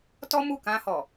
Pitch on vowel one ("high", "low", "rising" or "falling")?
high